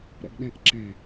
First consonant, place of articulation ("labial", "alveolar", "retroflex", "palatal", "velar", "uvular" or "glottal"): alveolar